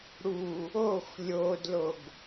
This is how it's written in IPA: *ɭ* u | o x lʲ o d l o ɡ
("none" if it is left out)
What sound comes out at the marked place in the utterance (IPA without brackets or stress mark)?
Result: ɽ